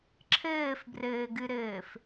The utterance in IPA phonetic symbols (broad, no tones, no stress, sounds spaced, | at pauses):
ǁʰ ɘː f b r ɘː ɡ ɨ ɾ ɘː f